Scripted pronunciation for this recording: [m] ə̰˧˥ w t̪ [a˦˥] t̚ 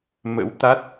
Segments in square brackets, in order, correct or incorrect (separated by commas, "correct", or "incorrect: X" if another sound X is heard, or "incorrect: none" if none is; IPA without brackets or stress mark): correct, correct